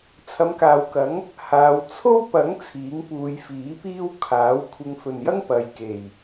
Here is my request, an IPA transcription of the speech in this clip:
t͡sʰ ɐ˨˧ m k aː˨ w k ɐ˨˥ ŋ | h aː˨˧ w t͡sʰ o˥ w p ɐ˨˥ ŋ t͡sʰ iː˨˥ ŋ p uː˨˧ j f iː˨˥ p iː˥ w kʰ aː˨˥ w kʷʰ ɪ˨ ŋ f ɵ˨˩ n j ɐ˥ ŋ p ɐ˨ j k e˨˩ j

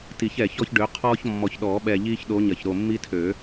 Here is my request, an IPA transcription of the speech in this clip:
t i˨˩˦ ç ɛ˨˩ ç ɔ˦ ç ɖ ø˨˦ qʰ ɔː˦ ç mː ɔ˨˩ ç ɗ ɔː˨˩˦ ɓ ɛ˨˩ ʎ iː˦ ç ɗ o˨˦ ɲ ɐ˨˩ ç ɾ o˨˩ mː i˦ tʰ ø˨˩˦

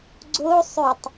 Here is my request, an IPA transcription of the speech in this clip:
ɡ͡ǀ o sˤ ø tˤ

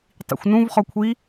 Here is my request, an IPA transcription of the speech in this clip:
tˤ ḭ xʷ n ũ v χ ɔ kʷʰ i

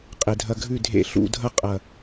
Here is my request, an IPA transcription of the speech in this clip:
qʼ e˨ dʱ ɐ˧ ɡʱ ʉ˦˨ dʱ ḛ˦˨ ɬ ṵ˦˨ dʱ ɐ˦ qʼ ɐ˨

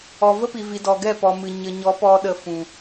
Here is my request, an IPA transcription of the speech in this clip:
ɔ˨ v ə˦ p i˨ v i˨ d ɔ˨ ɡ ɛ˦˨ p ɔ˨ m ɨ˨ ɲ ə˨ ɲ ɔ˨˦ p ɔ˧ ɗ ə˧ f ũ˨

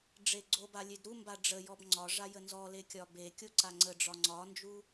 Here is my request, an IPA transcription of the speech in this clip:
ɖ͡ʐ e ɡ͡ǀ o b a lʲ e d ɾ u m b a ɖ͡ʐ ə j ɔ b ŋ͡ǀ ɒ ʐ a j ə n z ɔ l e kʲ ɒ b e kʲ o ǀ a ŋ͡ǀ ə ɖ͡ʐ ɒ ŋ͡ǀ ɒ n d͡ʒ u

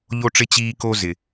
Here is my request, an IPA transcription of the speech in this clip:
ʎ o˦ ʈ͡ʂ ɪ˦ t͡ɕ iː˦ k o˦ z ɪ˨

